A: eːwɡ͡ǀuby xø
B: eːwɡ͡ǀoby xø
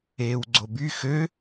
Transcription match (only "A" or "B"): B